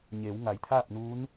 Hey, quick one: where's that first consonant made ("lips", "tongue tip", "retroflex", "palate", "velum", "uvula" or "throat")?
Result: palate